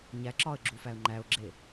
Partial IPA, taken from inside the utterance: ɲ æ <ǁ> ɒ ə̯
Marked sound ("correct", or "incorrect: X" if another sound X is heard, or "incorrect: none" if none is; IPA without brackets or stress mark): correct